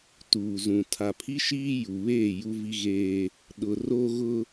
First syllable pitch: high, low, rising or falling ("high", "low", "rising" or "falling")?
low